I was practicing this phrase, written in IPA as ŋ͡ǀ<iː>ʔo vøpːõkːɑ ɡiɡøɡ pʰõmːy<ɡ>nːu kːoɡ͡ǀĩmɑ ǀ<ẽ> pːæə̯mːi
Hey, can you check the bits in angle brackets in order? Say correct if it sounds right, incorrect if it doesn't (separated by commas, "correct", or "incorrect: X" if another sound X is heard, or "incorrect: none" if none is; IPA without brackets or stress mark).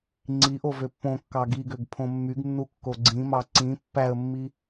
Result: incorrect: i, correct, incorrect: ĩ